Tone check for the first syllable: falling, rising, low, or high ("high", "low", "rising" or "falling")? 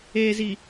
low